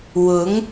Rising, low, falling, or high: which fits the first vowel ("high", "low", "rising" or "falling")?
rising